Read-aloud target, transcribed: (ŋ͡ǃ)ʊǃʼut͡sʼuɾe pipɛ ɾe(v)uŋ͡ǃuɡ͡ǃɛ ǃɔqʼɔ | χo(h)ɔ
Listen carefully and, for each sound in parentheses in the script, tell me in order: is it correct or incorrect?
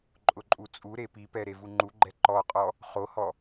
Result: incorrect, correct, correct

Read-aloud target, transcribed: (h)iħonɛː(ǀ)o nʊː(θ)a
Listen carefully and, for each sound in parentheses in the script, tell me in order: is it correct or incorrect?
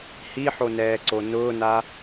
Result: correct, correct, incorrect

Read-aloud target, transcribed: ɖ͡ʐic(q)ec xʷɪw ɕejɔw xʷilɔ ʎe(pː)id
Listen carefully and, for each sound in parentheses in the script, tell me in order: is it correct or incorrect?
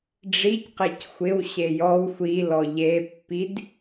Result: correct, correct

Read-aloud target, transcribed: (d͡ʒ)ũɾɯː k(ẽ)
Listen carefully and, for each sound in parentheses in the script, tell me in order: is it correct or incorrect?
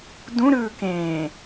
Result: incorrect, incorrect

